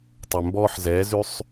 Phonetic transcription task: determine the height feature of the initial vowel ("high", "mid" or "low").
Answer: mid